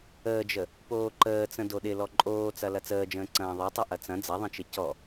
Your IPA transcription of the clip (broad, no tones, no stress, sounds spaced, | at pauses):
əː d͡ʒ ə | p oː ǃ əː t͡s ə̃ d o ɗ ɪ l ɔ ǃʼ oː t͡s ɐ l ɐ t͡s əː d͡ʒ ə̃ː ǀ ɐ̃ː ðˤ ɐ tˤ ɐ ʔ ɐ t͡s ɐ̃ d͡z ɐ ðˤ ə̃ t͡ʃ ɪ c ɔ